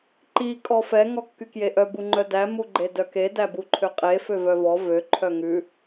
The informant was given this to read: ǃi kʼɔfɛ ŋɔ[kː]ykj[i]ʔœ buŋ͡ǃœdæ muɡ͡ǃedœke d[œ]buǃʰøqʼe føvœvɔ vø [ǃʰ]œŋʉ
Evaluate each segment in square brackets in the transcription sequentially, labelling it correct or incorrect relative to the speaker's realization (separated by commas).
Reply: correct, incorrect, incorrect, correct